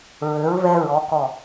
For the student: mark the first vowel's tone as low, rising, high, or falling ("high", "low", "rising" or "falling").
rising